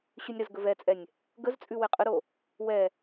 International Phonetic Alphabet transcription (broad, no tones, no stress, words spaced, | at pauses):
ɕʉnʲɾəz ɡəvɛt͡sʼɛnʲ | ɡəzt͡sʼʉ wɛqʼəɾo | wɛ